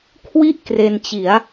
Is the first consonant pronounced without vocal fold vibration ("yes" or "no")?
yes